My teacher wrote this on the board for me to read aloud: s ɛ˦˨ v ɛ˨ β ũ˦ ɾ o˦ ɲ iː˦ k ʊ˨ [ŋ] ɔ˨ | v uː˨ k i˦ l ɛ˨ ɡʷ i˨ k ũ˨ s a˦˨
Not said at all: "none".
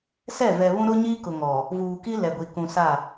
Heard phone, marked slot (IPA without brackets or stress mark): ŋ